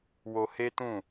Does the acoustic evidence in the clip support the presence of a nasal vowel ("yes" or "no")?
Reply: yes